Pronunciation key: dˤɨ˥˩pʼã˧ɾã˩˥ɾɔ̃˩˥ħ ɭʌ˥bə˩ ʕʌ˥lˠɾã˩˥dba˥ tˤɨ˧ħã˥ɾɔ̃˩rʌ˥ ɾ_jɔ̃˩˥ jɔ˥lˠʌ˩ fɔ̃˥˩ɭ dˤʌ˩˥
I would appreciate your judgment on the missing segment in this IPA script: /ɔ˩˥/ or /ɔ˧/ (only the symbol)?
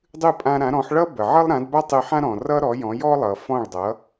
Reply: ɔ˩˥